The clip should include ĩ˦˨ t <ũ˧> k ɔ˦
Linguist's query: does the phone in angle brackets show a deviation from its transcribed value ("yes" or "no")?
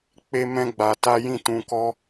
no